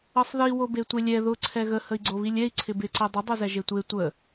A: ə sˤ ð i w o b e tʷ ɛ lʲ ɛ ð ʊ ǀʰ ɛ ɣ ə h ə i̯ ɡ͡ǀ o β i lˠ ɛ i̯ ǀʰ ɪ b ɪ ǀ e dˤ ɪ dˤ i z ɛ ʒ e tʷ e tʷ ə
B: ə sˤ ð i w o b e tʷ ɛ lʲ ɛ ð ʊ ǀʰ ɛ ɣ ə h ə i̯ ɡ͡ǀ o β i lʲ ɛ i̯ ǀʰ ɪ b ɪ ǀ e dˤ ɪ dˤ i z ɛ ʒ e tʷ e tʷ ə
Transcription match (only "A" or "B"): B